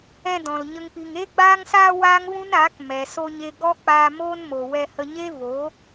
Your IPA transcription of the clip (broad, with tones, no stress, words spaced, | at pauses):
ɛ̃˧ dɔ̃˨lɲə˦ŋpi˧ŋ eː˧ɡ͡baː˧ŋsaː˧ waː˦ŋvũ˦naː˨˦k mɛ˨so˧ɲe˧ ɡɔ˦k͡paː˧ moː˦nmo˨wɛ˧ hə˧ɲe˦voː˨˦